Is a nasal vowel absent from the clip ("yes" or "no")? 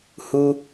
yes